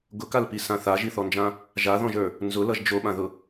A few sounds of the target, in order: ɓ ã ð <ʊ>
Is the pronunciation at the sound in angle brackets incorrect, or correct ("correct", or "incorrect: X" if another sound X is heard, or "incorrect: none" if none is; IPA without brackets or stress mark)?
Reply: correct